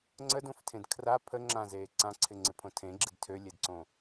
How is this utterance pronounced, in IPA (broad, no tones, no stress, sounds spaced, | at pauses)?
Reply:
ŋ͡ǀ ə d õ f tʰ ẽ d kʰ r a pʰ ə ŋ͡ǁ ã z eː ǀ ã ǀʰ ɪ ŋ͡ǀ ɪ pʰ õ tʰ ẽ ɡ͡ǁ ɪ d tʰ ø lʲ e d ǀ õ